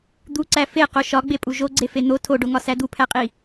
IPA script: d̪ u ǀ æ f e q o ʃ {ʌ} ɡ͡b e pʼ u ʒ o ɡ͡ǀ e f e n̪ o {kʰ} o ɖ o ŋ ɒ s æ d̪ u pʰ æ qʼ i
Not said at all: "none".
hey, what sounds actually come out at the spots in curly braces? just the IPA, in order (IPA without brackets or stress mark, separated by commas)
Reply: ɒ, tʰ